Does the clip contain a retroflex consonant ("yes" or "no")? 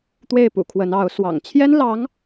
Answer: no